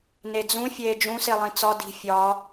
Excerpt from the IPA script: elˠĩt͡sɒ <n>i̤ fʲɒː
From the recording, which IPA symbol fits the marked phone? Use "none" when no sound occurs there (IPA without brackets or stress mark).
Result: d